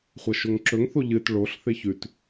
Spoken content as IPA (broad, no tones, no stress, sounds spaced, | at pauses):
χʷ ɐ ʃ o ŋ ǁ ɵ ŋ θ o ʎ ɨ t ɭ o ɬ θ e ç ʉ t